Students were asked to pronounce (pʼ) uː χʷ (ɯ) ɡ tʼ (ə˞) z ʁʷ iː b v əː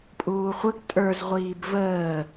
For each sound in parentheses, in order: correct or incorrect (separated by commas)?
correct, incorrect, correct